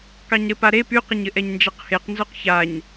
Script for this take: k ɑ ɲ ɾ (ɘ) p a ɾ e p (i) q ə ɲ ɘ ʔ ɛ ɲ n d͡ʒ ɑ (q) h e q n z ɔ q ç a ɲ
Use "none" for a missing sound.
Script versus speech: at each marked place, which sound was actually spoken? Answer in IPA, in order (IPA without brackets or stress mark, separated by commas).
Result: ɘ, y, q